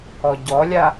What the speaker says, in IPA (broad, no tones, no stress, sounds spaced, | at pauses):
ɔ ɟ ɔ lʲ a